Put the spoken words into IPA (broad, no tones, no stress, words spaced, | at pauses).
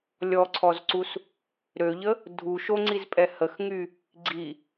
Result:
lʲɔǀʰɔzǀus | ɾøʎə | dʱu ʃoŋ͡ǀizpʼɛ həxŋy | ɡ͡ǀi